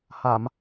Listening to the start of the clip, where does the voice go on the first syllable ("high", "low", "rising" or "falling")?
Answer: low